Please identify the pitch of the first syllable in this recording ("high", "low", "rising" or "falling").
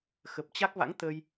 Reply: low